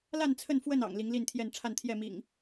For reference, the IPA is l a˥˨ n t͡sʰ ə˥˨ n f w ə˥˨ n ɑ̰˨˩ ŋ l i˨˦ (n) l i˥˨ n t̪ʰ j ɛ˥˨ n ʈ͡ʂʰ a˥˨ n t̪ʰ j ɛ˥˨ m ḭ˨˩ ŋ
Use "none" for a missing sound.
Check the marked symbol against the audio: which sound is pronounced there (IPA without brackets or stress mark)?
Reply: ŋ